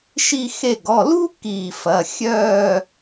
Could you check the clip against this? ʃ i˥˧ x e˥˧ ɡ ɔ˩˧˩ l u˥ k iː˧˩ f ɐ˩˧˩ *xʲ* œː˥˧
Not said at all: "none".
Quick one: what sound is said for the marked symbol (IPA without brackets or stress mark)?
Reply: xʲ